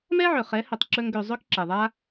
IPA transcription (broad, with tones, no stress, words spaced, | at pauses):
mɛ˦ʕɵ˨χɛ˨˦ hɵ˧tˤǁɵ˦ŋɡø˧ zˤø˦kǁɛ˨ðˤa˦